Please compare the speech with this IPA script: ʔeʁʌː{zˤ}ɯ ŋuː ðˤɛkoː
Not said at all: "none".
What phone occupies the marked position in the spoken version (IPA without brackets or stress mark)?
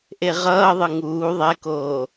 ðˤ